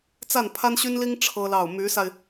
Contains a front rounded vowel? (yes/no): yes